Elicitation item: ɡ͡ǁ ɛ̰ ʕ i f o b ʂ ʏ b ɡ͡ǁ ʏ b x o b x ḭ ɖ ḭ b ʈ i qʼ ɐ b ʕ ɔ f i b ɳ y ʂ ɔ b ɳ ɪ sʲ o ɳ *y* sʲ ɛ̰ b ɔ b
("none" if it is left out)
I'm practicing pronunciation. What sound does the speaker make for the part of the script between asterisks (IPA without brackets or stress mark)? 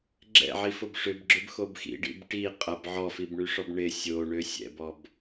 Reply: ø